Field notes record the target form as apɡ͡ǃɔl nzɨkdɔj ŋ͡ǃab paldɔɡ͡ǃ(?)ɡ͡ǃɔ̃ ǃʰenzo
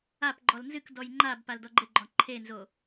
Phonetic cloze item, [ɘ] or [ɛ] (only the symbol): ɘ